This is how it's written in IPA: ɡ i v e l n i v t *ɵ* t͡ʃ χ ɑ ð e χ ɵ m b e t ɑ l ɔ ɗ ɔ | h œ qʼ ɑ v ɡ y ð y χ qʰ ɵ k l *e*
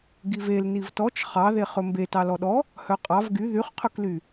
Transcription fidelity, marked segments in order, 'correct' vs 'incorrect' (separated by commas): incorrect, incorrect